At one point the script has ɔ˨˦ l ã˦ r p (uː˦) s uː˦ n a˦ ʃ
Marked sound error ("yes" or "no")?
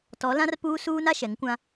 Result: no